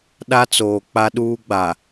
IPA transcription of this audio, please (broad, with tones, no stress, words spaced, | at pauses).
ɗa˦t͡soː˨ k͡pa˦ɗuː˦ɡ͡ba˨